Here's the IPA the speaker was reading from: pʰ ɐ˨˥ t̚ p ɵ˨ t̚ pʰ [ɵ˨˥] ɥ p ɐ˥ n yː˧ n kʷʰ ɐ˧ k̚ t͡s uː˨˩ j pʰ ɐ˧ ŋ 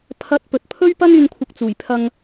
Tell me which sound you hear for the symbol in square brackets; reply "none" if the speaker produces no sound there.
ɵ˥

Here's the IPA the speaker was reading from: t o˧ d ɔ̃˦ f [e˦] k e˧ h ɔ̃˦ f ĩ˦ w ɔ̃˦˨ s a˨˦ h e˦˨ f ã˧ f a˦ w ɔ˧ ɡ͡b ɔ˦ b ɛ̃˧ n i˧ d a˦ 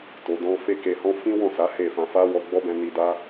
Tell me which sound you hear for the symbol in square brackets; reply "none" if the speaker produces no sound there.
e˦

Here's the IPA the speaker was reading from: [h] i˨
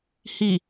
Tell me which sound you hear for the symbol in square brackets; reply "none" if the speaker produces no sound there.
h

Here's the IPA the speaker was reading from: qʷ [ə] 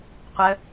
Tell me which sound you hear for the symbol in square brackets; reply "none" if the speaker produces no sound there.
ə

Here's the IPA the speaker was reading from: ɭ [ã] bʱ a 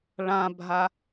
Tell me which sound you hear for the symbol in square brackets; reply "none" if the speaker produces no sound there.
ã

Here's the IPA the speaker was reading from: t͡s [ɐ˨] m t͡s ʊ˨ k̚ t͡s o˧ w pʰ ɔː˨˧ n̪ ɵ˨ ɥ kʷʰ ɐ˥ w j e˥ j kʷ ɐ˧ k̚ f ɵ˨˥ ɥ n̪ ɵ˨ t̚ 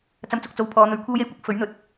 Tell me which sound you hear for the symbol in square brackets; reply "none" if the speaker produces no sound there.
ɐ˧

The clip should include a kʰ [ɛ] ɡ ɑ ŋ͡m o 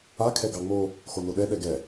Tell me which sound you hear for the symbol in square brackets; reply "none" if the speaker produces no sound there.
ɛ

